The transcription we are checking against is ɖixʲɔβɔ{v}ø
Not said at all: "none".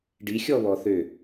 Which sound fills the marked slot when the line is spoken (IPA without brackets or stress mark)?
θ